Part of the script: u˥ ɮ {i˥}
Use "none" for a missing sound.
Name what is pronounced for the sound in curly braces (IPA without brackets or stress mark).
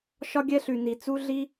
i˥